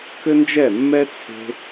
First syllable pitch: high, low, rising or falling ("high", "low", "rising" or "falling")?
high